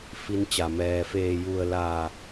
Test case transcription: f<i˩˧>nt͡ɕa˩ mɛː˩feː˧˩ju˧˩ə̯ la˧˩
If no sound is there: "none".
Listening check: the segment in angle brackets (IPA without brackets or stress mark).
i˧